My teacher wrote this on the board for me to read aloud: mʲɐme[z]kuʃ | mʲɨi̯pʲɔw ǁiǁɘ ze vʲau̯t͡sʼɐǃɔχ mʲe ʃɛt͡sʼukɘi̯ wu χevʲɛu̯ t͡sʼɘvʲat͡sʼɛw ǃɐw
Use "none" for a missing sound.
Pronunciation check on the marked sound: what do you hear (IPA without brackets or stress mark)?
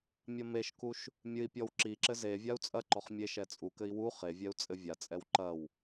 ʃ